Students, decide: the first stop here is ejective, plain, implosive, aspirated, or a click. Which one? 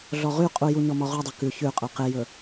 ejective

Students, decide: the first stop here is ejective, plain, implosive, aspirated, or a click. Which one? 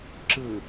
click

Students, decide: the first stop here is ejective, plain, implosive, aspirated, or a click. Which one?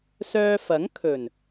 aspirated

